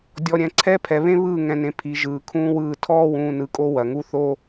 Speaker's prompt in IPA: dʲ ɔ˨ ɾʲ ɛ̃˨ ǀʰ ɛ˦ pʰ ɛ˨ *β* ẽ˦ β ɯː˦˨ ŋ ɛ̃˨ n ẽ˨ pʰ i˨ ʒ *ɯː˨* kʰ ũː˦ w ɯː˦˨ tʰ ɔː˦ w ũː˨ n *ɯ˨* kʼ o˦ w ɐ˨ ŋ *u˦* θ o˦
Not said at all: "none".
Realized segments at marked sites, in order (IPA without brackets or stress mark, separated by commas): β, ɯː˨, ɯ˨, u˦